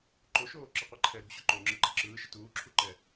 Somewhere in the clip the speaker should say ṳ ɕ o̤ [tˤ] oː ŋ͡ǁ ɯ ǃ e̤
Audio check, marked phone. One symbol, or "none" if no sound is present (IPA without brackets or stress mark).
ǃ